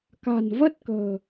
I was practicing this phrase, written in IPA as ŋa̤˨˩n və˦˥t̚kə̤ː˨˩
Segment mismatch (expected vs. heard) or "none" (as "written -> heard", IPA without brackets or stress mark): ŋ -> k